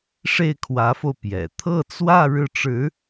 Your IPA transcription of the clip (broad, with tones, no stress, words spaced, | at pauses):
ʂe˥˩ɪ̯kʰwä˧˥fo˧ʊ̯ pjɛ̰˨˩ t̪ʰɤ˥˧t͡swä˥˧ ɻɻ̩˥˩ʈ͡ʂɻ̩˧˥